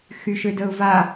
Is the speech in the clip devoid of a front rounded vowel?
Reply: no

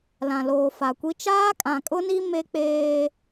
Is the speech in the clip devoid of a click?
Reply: yes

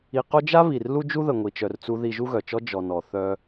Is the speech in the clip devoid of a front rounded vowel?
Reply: no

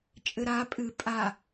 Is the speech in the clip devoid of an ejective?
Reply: no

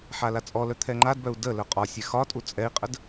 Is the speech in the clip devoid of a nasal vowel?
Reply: yes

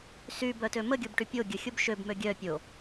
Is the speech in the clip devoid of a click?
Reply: yes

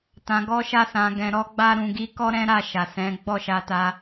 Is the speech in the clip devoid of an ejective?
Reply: yes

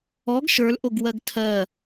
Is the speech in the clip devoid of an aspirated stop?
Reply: no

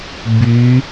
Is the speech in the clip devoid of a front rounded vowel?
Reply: no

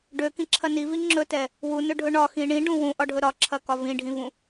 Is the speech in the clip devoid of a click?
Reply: no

